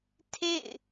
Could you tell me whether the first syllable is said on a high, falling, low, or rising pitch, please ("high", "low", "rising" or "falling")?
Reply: falling